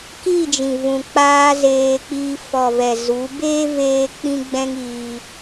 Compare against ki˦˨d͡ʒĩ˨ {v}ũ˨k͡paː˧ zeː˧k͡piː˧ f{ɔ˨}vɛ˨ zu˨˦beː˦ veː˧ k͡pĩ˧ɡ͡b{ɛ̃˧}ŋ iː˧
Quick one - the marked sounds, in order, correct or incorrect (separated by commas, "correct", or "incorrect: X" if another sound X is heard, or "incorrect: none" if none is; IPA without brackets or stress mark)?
correct, correct, correct